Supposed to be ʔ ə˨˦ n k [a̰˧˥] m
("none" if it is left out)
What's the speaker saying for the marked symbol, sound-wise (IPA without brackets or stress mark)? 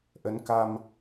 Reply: a˧